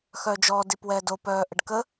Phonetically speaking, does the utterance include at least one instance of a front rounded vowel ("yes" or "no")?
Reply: yes